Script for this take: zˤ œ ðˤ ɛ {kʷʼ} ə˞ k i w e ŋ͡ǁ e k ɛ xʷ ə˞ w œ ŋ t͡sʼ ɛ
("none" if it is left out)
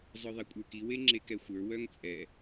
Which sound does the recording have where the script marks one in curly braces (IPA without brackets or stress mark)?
kʷʼ